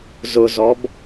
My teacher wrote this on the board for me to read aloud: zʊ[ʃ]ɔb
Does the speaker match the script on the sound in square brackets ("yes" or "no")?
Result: no